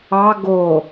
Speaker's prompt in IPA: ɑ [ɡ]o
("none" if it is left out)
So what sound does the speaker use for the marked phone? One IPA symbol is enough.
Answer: ɡ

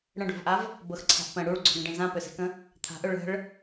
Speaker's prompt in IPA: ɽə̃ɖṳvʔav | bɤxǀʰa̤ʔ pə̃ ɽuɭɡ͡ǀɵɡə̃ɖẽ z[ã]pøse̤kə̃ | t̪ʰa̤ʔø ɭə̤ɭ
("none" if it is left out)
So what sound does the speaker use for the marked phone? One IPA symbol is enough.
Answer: ã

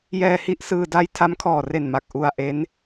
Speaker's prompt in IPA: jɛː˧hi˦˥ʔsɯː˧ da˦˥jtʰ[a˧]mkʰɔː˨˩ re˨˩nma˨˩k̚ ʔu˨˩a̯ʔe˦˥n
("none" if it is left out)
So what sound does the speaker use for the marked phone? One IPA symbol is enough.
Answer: a˦˥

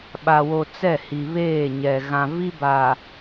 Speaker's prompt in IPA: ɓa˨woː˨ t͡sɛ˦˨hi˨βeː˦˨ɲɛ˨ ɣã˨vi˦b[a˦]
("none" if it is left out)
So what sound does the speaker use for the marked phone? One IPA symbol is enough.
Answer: a˨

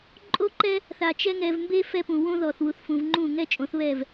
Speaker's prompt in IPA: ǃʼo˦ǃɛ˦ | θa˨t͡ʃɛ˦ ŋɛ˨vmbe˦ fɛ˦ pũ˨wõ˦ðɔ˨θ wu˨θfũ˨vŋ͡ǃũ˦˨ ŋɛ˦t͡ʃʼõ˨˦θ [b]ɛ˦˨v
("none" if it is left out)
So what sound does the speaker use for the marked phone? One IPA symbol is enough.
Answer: β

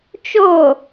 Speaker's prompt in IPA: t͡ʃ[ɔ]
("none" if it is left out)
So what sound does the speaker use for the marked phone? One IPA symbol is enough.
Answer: o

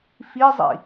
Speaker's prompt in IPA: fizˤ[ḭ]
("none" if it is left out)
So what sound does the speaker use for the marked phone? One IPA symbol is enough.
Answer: ḭ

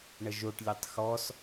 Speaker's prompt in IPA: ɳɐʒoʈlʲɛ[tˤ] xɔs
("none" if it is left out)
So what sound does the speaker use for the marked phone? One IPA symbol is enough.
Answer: tˤ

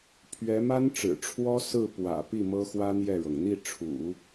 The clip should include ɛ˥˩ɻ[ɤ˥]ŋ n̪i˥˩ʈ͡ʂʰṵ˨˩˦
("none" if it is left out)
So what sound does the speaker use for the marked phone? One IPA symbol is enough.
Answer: ɤ˩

